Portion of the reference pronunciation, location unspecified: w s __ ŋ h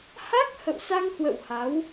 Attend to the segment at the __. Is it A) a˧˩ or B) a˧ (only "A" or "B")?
B